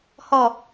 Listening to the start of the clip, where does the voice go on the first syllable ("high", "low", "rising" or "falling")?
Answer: falling